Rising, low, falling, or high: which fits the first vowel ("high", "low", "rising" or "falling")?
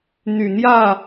low